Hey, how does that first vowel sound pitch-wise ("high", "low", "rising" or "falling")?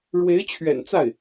rising